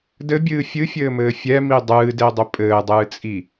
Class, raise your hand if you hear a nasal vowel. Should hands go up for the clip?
no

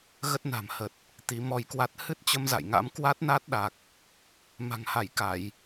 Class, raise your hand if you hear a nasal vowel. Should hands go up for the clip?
no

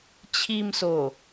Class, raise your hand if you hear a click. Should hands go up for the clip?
no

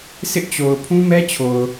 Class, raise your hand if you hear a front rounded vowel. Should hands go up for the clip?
no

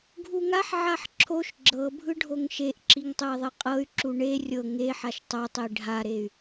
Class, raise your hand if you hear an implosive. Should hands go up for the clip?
no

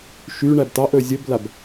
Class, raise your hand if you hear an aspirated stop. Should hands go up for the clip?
no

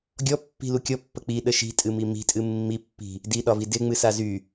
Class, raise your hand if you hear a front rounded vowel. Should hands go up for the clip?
yes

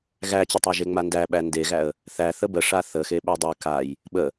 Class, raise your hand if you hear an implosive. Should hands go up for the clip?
yes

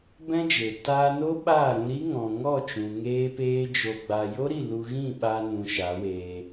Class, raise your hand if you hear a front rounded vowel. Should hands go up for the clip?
no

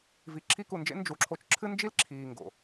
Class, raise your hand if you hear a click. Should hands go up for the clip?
yes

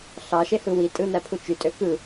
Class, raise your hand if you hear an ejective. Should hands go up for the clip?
yes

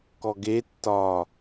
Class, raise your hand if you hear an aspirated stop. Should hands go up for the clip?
no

